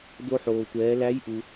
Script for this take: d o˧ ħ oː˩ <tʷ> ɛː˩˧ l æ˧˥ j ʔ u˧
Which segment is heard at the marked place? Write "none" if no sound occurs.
tʷ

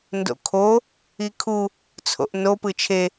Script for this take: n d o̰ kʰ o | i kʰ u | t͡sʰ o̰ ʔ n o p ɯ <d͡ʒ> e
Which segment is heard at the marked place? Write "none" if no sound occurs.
t͡ʃʰ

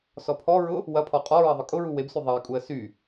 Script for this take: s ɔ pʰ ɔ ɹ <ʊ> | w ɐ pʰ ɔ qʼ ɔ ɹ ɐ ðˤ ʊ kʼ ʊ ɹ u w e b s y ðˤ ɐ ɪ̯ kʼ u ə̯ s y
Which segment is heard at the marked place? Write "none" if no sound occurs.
ʊ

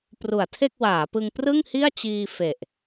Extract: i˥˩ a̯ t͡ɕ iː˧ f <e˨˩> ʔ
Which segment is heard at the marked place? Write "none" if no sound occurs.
e˨˩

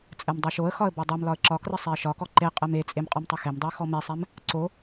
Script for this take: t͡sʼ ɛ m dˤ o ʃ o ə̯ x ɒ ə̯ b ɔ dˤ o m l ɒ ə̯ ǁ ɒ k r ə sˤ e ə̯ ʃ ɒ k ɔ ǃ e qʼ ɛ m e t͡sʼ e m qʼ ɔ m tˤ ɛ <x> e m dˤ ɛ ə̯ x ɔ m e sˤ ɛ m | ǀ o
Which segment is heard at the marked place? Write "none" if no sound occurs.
x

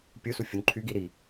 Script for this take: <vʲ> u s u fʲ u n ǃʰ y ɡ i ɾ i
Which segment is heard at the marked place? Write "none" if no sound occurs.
pʲ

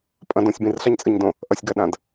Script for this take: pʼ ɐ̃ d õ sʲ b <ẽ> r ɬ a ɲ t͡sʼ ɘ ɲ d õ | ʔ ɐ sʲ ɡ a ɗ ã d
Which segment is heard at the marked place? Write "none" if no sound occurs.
ĩ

